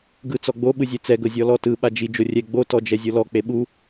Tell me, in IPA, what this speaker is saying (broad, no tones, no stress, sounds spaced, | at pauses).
ɡ ɯ t͡s ɔ ɡ͡b o ɓ ɯ zʲ e t͡s ɛ ɡ ɤ zʲ ɔ l ɔ t ɯ ɓ a d͡ʒ i d͡ʒ o rʲ ɛ ɡ͡b o t ɔ d͡ʒ ɛ zʲ o l ɔ k͡p e ɓ u